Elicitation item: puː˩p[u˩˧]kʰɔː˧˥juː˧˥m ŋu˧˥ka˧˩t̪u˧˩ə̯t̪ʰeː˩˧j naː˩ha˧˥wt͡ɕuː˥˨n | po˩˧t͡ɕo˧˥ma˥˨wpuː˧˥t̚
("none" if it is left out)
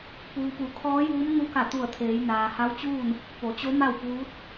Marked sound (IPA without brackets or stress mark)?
u˩˧